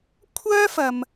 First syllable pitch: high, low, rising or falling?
high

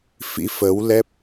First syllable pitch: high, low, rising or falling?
rising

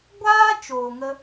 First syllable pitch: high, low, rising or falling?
high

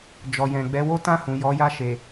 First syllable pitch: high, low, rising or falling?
low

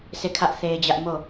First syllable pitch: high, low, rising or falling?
falling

